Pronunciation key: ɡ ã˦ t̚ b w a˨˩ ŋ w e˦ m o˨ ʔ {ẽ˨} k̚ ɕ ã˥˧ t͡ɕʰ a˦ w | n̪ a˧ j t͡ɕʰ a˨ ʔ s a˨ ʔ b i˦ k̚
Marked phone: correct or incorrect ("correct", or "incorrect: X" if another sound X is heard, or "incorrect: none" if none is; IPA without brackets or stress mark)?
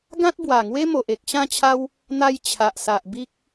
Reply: incorrect: e˨